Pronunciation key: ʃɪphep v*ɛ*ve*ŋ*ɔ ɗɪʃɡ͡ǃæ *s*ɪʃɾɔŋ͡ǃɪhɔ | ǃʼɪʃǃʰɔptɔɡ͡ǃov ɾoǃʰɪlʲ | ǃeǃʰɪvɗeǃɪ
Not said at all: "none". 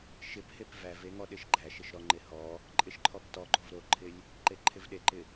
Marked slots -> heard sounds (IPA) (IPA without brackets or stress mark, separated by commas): æ, ŋ, ʃ